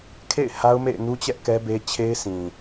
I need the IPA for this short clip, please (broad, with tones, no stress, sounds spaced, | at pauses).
kʰ ḛ˦˨ ɪ̯ h a˦ ʊ̯ m ḛ˦˨ ɪ̯ n u˦ t͡ɕ ɛ˦ ʔ k ɛ˦ b e˦ t͡ɕʰ e˦ ɪ̯ s ĩ˨